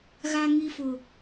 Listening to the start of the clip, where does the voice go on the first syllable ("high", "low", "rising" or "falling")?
low